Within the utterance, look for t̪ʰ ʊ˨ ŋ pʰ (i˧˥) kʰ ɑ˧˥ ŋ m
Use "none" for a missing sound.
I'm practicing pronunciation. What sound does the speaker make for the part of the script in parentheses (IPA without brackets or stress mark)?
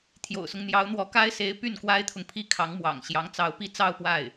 i˥